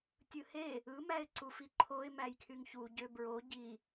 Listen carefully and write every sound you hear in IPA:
tʲ ɯ h e | ɯ m æ ɪ̯ ǀ u f i ǃʰ o ɪ̯ m æ j kʰ y ŋ ç u ɟ ø b ɹ o ɟ i

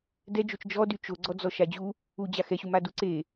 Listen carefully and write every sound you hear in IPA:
d ɛ d͡ʒ o t͡ʃ d͡ʒ ɔ d y t͡ʃ o ɡ͡ǀ ɔ d͡z ɔ ʃ a d͡ʑ u | u d͡ʑ a x ɛ ɕ u m a d u ǀ e

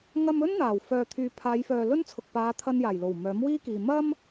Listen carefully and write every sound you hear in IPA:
ŋ ɐ˧ m ɵ˥ n n̪ aː˨˩ w f œː˨ t̪ʰ yː˨ pʰ aː˨˧ j f œː˨ l ɵ˥ n t͡sʰ ʊ˨ k̚ p aː˨˧ t̪ʰ ɐ˧ n j aː˨˩ j l o˨˩ w m œː˨˥ m w iː˥ k iː˨ m ɐ˥ m

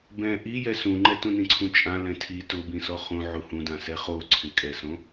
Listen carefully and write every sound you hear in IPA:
b ɛ̃ ʔ i j ɛ s ũ ŋ͡ǃ ɛ t ũ n ĩ ǀʰ ũ t͡ʃʼ ã l ɛ̃ tʰ i t ʊ b ĩ s ɔ χ ũ ʕ u h ũ d ã s ɛ χ o ǀʰ ɪ kʼ ɛ s õ

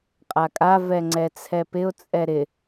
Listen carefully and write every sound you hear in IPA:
qʼ a kʼ a v ɛ ŋ͡ǀ ɛ t͡sʰ ɛ p ɪ ʊ̯ t͡sʼ ɛ ɾ ɪ

